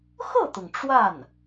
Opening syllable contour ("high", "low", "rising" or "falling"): falling